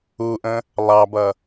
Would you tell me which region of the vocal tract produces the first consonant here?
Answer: throat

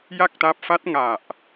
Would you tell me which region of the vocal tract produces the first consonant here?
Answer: palate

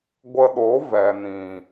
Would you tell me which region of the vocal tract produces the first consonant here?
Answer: velum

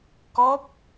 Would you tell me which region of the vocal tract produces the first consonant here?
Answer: velum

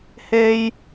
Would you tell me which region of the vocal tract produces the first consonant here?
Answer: throat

